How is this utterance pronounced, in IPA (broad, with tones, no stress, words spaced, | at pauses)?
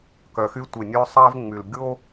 kœ˨xy˦tʷe˨ nʲø˦sˤæ˦vŋ͡my˨l ɡʲo˦